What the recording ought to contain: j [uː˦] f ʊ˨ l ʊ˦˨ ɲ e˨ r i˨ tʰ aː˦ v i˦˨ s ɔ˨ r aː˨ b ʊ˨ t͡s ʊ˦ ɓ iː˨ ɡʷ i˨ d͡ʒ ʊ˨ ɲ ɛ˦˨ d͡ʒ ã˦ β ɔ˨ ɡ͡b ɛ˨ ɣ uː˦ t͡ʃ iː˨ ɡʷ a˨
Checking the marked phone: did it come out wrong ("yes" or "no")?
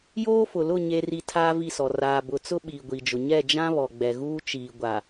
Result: yes